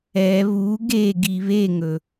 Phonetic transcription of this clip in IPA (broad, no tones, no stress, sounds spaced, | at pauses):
ɛ β u ɡ e ɡ i β e ŋ ɵ